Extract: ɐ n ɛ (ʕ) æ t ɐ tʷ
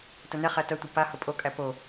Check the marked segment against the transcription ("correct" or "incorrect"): incorrect